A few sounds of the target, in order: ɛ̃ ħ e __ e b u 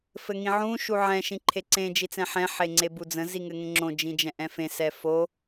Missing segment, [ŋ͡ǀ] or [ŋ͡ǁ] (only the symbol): ŋ͡ǀ